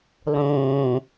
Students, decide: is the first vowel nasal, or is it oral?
nasal